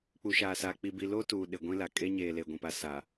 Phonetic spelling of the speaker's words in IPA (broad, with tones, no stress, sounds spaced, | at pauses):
k͡p u˨ ʃ aː˨ s a˨ k͡p i˨ b i˨ l o˦ t uː˨ ɗ ɪ˨ ɡʷ ĩ˦ l a˨ kʼ e˦ ɲ eː˨ l e˨ ɡʷ ĩ˨ p a˨ s a˨